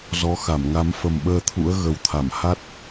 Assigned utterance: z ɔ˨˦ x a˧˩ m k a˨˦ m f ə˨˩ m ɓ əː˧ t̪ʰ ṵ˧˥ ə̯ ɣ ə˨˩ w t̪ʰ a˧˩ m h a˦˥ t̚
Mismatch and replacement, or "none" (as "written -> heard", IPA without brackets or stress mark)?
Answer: k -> ŋ